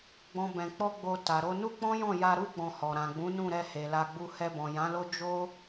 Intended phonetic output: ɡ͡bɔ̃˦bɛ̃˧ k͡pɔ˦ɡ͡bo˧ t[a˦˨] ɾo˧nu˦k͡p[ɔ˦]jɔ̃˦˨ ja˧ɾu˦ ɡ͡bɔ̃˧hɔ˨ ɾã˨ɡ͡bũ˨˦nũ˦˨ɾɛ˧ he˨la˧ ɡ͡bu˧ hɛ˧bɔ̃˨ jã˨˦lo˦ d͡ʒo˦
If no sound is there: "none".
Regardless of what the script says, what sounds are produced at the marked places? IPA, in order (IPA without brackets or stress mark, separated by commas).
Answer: a˨, ɔ̃˦